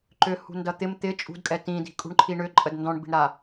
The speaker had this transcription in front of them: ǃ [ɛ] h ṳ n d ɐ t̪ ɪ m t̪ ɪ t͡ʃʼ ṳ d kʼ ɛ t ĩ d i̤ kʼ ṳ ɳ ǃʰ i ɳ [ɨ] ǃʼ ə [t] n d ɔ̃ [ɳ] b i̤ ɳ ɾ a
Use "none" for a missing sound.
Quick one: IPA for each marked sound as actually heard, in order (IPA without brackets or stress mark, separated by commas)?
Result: ʏ, ʏ, d, ɳ